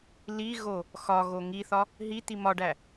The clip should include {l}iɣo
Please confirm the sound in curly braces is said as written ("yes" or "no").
yes